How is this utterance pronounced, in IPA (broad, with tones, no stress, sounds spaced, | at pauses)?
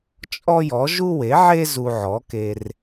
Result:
t͡ʃʼ ɔ˥ j ɔ˩˥ ʒ u˥ w e˩˥ ʕ e˥ z u˧ ʕ ɔ˩˥ k e˧ r